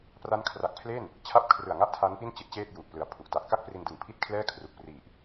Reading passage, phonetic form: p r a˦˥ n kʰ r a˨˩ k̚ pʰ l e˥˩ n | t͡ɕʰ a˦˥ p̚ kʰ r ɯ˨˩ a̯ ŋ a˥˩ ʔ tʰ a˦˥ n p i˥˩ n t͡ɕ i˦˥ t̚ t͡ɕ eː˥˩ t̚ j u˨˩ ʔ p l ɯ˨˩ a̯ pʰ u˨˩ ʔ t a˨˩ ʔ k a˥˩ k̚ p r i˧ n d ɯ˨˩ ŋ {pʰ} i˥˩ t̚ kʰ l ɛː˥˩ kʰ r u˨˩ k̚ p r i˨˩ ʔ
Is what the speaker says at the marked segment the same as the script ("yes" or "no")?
yes